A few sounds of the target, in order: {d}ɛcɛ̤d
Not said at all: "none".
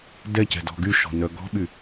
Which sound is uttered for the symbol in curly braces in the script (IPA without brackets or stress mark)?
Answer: d